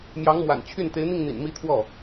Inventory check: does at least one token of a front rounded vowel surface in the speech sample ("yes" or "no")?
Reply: yes